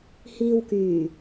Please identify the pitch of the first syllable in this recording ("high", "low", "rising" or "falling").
low